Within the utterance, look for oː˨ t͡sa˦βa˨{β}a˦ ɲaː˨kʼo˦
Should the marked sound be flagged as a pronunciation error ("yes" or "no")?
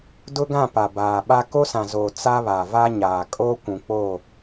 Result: yes